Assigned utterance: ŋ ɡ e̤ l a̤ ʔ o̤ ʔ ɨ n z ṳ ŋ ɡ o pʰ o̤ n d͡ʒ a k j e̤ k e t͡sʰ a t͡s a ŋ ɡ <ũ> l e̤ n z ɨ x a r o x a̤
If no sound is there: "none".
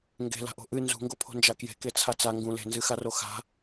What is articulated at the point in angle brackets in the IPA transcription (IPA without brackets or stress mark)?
ũ